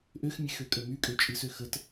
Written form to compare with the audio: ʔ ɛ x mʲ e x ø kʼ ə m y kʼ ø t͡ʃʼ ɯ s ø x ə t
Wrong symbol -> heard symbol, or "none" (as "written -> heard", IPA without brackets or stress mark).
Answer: ɛ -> ø